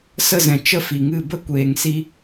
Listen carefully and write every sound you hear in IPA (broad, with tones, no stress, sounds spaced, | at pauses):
s ə˦˨ z ɛ̃˨ t͡ʃ ə˦ f i˨ ŋ ɨ˦˨ b ə˦ kʷ eː˨ ŋ s i˧